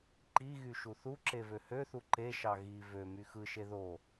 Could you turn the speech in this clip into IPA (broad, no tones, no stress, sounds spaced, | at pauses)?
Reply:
ǃ i ɣ y ʃ u θ u ǁ e v ø h ø θ u ǃ e ʃ ɑ ɣ i v ø m y x ɯ ʃ e ð o